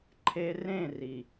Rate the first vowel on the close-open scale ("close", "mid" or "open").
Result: mid